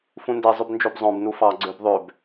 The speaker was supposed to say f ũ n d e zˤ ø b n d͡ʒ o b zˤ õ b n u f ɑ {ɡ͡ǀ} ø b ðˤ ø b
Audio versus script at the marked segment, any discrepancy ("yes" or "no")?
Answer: no